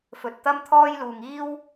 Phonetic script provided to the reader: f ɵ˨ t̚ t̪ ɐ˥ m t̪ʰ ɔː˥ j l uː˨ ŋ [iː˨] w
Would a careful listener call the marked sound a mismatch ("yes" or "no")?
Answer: yes